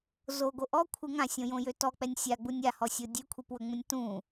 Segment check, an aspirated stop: present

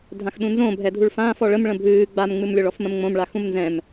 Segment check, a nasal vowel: present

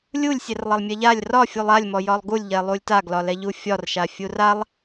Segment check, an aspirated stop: absent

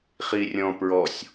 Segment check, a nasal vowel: present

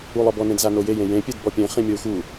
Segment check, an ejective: absent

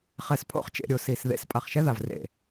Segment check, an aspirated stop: present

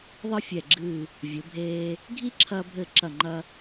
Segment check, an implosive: absent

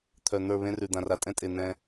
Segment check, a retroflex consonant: absent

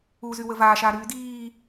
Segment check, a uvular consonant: absent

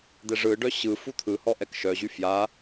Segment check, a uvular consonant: absent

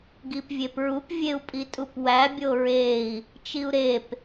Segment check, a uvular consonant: absent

